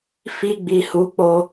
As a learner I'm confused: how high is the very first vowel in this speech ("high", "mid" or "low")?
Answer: high